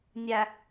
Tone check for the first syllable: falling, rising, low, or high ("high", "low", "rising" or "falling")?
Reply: low